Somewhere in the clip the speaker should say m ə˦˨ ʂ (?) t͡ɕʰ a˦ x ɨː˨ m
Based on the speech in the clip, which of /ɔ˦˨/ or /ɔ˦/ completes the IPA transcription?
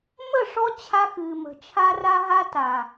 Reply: ɔ˦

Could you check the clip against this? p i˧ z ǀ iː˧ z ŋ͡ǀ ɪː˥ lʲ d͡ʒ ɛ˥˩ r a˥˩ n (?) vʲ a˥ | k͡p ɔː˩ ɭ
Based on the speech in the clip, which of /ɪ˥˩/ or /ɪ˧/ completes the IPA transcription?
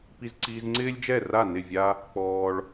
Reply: ɪ˥˩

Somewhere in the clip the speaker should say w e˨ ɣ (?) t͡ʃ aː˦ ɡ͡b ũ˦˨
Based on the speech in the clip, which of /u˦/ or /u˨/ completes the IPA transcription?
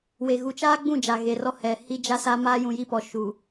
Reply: u˨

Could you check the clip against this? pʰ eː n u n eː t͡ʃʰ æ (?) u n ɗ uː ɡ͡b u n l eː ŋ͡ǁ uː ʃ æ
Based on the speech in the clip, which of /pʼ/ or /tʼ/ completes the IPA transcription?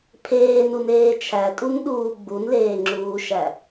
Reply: tʼ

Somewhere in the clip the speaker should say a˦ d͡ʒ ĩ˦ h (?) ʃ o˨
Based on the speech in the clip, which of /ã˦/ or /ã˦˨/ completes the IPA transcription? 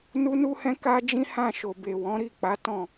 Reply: ã˦˨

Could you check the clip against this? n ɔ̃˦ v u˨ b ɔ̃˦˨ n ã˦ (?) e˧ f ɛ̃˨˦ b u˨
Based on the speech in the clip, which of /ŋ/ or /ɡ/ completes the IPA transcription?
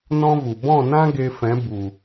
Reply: ɡ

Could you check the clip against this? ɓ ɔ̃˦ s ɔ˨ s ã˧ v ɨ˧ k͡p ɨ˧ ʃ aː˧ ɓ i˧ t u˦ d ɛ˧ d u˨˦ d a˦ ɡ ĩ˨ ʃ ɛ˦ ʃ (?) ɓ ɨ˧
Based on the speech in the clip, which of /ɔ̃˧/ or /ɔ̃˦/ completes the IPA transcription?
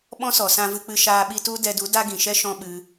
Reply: ɔ̃˦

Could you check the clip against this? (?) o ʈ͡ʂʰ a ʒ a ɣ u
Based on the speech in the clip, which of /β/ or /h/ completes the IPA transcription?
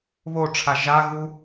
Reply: β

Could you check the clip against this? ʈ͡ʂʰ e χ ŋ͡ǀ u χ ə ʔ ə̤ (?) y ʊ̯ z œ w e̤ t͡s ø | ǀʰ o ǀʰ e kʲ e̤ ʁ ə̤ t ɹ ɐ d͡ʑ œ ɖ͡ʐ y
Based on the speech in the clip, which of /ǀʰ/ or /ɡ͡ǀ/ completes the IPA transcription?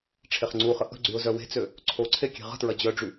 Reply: ɡ͡ǀ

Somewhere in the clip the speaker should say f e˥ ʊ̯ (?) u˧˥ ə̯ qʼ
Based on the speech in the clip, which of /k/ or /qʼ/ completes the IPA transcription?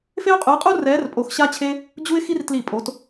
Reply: qʼ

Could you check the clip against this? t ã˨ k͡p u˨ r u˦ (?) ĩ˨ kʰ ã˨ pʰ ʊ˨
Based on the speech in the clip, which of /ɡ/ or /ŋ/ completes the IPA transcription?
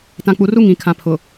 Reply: ŋ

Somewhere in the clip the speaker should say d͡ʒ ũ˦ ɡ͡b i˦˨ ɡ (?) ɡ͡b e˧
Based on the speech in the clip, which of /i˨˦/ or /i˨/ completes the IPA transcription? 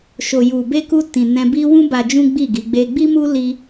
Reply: i˨˦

